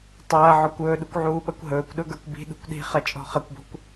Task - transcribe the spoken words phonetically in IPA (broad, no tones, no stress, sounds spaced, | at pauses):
tˤ ɐː ʕ ɔ kʷ ɵː ɗ u kʷ ʕ uː ɓ ɐ kʷ ɦ ɵː kʷ ɗ ɵ ɡ ə˞ kʷ b i̤ ɗ ṳ kʷ ɗ i̤ χ ɐ t͡ʃʼ ɔ̤ χ ɐ kʷ b ɔ̤ kʷ